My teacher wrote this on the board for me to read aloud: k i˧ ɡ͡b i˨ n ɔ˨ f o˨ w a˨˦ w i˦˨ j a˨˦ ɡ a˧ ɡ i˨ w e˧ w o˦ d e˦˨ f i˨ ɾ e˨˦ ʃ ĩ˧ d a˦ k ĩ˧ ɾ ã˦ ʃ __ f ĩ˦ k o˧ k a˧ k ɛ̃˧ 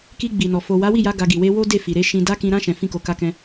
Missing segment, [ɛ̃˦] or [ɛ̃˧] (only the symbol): ɛ̃˧